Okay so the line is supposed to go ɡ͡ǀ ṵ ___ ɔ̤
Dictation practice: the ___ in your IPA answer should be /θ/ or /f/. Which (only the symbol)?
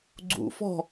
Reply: f